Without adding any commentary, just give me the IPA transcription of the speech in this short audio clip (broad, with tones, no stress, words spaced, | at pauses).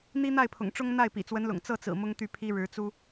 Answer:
n̪i˥n̪a˥˩ɪ̯pʰʊ̰˨˩ŋʈ͡ʂʊ˥ŋ n̪a˥˩ɪ̯ pḭ˨˩t͡swə˧˥nlʊ̰˨˩ŋ t͡sɤ˥˩t͡sɹ̩˨˩ mʊ˥ŋt̪y˥˩pʰi˥ɻɻ̩˧˥ t͡su˥